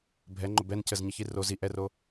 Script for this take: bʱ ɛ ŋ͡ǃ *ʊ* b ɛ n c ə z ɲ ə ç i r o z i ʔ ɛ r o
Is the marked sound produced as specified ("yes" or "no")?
yes